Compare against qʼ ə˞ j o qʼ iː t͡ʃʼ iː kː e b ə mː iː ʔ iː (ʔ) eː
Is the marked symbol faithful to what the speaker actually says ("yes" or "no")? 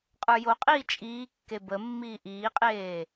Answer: no